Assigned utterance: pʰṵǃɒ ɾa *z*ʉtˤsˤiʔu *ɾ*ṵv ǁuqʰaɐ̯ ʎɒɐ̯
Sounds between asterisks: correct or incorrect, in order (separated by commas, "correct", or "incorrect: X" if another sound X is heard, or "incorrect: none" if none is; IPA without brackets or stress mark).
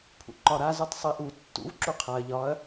correct, incorrect: tː